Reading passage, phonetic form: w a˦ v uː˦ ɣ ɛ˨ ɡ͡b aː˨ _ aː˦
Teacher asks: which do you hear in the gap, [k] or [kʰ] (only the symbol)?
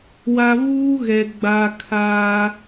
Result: kʰ